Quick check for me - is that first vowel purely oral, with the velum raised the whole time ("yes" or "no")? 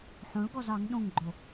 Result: no